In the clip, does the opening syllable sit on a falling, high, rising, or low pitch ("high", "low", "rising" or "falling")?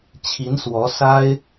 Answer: rising